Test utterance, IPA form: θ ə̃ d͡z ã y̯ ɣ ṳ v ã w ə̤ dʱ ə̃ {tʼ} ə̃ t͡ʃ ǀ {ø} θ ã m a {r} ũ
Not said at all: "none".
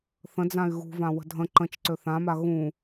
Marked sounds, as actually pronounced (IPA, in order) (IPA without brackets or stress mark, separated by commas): ǃ, ø, ɣ